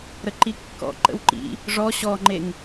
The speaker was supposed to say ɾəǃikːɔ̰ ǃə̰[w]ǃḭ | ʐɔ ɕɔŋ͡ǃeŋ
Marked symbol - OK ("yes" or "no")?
yes